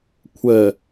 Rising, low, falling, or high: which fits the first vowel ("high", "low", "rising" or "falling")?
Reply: low